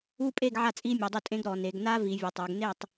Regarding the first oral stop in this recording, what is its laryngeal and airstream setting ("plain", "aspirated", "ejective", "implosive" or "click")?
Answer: ejective